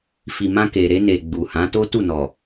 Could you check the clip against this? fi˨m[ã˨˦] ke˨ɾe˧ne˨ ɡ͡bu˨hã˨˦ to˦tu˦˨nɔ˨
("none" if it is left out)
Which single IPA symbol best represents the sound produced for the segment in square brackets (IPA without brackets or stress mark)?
ã˧